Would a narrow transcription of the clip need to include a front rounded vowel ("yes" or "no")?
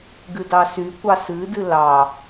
yes